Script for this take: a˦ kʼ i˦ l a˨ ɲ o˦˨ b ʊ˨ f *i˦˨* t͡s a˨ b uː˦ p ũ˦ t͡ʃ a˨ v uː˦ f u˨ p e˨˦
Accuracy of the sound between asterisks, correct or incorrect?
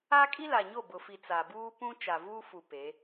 incorrect